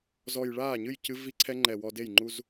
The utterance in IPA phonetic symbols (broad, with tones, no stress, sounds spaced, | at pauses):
z ɔ˨˩ j ɭ aː˥˩ ɲ ɨ˥˩ j c ɨ˦˥ v i˦˥ ǀʰ ɛ˦˥ ŋ͡ǃ ɛ˨˩ w ɔ˧ d e˥˩ j ŋ͡ǃ u˧ z